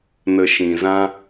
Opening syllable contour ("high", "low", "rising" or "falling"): low